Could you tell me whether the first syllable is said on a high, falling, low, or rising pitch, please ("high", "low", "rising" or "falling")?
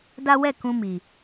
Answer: high